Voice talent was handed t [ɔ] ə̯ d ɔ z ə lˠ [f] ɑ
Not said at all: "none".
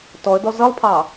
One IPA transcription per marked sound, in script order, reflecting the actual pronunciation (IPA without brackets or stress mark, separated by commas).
ɔ, pʰ